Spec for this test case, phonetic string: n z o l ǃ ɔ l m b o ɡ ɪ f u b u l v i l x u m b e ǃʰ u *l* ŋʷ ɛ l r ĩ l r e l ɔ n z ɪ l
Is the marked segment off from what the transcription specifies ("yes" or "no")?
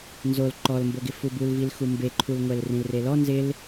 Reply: no